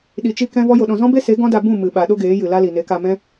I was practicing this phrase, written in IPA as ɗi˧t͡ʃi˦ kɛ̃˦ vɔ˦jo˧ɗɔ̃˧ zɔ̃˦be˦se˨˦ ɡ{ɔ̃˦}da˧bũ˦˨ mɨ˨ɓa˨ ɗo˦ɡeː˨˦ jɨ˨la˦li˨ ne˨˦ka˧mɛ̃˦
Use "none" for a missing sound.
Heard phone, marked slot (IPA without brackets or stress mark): ɔ̃˦